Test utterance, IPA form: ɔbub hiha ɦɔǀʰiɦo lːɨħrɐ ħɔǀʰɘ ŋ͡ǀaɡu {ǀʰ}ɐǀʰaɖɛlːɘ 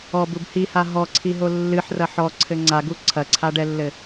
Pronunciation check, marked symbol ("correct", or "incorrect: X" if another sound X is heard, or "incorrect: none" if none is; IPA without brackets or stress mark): correct